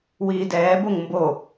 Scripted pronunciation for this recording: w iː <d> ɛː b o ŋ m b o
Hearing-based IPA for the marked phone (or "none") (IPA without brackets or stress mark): d